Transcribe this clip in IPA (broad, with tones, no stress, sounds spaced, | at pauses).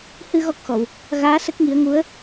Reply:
h ɨ˧ ɣ ɔ˦˥ k̚ x ɔ˨˩˨ w | ɣ aː˧˥ s ə˦˥ k̚ ŋ i˨˩˦ ə̯ ŋ u˧˥ ə̯